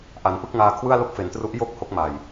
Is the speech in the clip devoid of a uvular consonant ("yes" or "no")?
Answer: yes